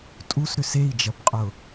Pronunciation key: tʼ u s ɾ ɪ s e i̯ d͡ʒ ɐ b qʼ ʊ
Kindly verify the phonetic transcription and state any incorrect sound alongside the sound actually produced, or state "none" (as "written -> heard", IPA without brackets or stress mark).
ɪ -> ʏ